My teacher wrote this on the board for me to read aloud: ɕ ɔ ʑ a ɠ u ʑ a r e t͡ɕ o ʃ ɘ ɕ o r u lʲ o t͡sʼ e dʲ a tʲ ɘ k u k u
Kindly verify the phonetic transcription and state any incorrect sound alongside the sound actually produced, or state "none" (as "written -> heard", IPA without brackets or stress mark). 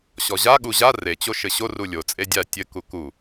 none